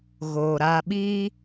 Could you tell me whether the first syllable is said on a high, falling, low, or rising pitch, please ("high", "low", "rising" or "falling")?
low